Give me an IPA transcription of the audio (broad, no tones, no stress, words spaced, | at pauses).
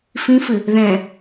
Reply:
fĩfɨ | ðɛ̃